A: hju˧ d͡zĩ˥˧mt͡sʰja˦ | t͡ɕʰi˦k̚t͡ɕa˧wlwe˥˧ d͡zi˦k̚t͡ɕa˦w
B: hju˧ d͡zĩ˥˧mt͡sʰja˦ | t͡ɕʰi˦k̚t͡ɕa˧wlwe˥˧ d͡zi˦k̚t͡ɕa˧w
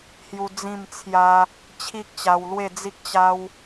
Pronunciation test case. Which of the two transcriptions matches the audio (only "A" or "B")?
A